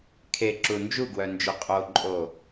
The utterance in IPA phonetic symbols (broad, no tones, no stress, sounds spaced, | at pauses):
kʰ e ǁ u n d͡ʒ u ɡ w œ n d͡ʒ œ qʼ o ǃʼ o